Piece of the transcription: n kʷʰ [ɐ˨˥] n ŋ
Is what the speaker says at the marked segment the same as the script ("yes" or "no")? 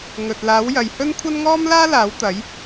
no